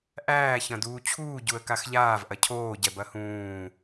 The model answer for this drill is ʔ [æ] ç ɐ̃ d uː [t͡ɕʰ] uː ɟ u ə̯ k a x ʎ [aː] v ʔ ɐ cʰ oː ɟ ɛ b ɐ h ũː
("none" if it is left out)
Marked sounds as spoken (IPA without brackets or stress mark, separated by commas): æː, t͡ɕʰ, aː